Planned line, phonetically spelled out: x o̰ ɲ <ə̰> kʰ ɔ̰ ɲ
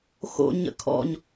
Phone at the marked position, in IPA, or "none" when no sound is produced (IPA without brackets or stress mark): ə̰